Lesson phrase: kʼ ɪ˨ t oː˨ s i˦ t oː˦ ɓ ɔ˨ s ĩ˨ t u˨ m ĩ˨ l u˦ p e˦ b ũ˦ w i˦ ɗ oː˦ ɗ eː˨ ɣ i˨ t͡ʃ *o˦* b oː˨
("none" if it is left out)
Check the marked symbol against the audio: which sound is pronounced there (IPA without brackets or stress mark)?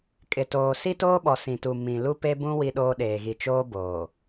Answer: oː˦